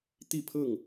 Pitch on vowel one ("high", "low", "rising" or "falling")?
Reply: falling